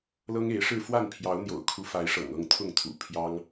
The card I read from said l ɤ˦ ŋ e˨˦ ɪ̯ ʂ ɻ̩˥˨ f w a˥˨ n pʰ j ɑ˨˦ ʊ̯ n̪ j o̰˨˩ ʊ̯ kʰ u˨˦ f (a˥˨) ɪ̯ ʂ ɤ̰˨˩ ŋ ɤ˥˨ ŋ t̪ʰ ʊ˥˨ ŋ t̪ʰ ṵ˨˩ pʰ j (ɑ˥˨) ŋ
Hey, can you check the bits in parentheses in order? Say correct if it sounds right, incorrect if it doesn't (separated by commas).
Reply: incorrect, incorrect